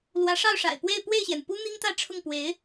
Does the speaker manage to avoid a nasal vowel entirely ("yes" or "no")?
yes